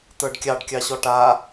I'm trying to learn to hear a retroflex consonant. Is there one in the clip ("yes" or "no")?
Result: yes